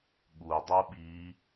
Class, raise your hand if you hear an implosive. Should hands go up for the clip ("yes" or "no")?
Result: yes